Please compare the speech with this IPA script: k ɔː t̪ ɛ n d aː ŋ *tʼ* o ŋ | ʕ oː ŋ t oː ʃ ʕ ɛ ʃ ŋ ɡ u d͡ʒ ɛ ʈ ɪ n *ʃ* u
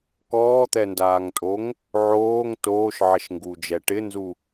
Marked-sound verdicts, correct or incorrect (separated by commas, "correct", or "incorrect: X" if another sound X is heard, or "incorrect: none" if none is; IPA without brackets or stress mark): correct, incorrect: z